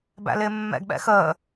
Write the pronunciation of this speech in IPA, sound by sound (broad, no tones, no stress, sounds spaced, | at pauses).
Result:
b æ̰ l ɪː mː ɛ̰ ɡ ɓ ɛ̰ x əː